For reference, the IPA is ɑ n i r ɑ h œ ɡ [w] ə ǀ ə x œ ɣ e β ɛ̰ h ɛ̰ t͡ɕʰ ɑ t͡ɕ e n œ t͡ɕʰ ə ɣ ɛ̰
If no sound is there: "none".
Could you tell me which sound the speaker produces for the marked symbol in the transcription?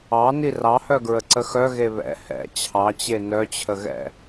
ɹ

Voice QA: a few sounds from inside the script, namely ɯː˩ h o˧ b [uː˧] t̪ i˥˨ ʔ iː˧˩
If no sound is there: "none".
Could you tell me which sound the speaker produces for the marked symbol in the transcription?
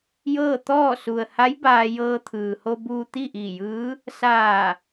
uː˧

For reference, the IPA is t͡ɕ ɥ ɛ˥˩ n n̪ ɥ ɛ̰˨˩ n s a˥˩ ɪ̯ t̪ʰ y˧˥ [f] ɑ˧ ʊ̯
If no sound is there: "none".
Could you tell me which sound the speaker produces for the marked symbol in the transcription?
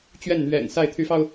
f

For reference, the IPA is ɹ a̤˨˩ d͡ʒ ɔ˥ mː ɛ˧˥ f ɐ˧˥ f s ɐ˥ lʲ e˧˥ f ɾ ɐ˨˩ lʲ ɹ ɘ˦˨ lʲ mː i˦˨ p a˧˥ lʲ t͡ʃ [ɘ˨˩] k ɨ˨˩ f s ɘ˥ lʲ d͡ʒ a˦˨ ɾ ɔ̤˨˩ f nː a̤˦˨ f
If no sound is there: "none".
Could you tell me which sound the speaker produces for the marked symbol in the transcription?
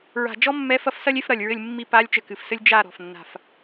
ɘ˨˩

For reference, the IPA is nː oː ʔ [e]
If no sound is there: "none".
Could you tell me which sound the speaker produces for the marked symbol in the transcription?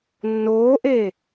eː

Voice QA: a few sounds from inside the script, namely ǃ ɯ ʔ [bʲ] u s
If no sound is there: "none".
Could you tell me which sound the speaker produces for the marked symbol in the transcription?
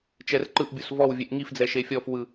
bʲ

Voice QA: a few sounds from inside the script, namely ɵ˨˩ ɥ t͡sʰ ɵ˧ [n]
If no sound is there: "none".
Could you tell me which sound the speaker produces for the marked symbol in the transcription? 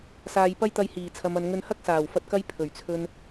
n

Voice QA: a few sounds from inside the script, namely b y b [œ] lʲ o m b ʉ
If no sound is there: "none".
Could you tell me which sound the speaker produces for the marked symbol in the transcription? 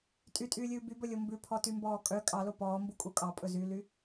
ɵ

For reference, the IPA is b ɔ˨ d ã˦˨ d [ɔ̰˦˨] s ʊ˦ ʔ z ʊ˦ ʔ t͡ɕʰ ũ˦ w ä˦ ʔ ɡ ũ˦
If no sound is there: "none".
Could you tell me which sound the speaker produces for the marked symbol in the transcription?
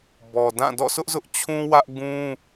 ɔ̰˦˨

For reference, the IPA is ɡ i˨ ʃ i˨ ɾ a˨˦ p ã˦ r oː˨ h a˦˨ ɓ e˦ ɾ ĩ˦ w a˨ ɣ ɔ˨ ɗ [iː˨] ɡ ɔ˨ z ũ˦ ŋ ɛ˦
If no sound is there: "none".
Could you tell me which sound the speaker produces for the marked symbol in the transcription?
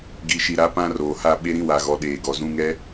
eː˨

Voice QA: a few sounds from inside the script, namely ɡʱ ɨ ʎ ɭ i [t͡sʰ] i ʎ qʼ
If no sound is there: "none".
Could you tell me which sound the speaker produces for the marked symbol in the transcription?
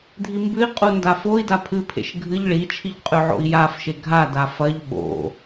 t͡ʃʰ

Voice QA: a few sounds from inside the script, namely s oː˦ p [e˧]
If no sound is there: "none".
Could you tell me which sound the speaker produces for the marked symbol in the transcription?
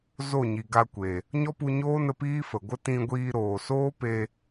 e˧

